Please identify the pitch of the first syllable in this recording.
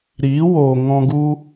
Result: rising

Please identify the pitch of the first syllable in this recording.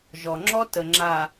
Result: low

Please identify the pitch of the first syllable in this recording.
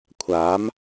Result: rising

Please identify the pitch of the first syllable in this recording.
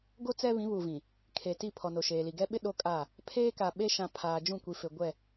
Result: high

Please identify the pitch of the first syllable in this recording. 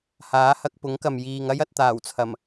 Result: rising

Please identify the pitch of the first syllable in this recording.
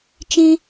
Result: high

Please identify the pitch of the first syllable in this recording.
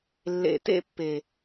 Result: low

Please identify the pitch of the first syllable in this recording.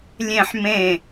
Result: falling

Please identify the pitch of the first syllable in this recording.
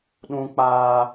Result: high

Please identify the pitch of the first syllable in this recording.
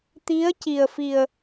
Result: rising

